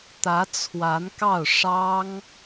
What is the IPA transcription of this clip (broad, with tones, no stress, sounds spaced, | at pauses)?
t̪ ä˧˥ t͡sʰ w a˧˥ n k ɑ˥˩ ʊ̯ ʂ ɑ˥ ŋ